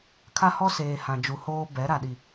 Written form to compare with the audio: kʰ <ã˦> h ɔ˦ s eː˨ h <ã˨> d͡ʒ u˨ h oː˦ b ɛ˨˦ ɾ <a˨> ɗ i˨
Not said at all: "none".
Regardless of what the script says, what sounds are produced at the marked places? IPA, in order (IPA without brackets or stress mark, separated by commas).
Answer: a˦, ã˨, a˨